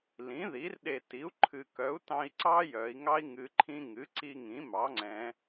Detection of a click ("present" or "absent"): present